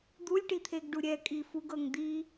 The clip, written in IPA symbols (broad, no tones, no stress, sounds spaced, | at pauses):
d̪ u lʲ ʈ i t̪ʰ e ɡ ɖ u ɾʲ ɛ kʼ i f u ɡ ɤ ŋ d̪ i